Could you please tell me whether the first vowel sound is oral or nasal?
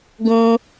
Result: nasal